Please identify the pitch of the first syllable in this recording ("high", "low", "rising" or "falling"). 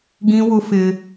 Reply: high